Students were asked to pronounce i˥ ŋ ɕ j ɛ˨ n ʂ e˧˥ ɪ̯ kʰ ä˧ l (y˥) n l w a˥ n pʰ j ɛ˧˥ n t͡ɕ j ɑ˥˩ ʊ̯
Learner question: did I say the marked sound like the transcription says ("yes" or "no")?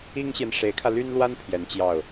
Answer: yes